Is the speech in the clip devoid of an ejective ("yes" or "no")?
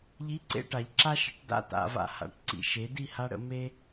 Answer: yes